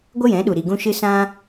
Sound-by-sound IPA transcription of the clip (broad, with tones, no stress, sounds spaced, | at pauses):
ɡʷ ə˦ j ɛ̃˨˦ ɗ u˨ ɾ i˨ ɡ ũ˧ ʃ ɨ˧ s ã˦